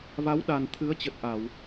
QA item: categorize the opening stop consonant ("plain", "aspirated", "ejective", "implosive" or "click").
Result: implosive